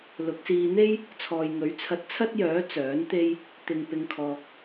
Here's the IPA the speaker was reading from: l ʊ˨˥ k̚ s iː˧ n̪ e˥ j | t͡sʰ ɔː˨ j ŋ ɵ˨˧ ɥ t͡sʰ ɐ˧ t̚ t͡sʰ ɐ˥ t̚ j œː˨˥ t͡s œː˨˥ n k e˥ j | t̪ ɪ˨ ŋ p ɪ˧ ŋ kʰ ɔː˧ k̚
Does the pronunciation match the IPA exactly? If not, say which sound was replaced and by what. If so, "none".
k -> t̪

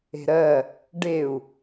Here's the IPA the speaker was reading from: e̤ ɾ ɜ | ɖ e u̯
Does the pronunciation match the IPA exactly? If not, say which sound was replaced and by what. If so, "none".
none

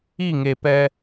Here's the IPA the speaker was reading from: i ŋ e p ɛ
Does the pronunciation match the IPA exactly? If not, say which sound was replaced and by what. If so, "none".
none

